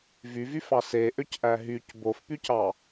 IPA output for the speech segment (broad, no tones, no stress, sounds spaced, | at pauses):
v y v y f ɑ s e ʔ ø c ʔ æ ɦ y c b o f p y c ɑ